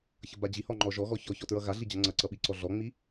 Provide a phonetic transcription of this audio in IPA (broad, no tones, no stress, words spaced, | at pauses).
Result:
çʌbad͡ʑihɔ ŋ͡ǃɔʒɔɣɔ çɔçɔ tɹʌɣaɮi d͡ʑʌŋ͡ǀʌǀʌ ɓiǀɔɮɔŋ͡mi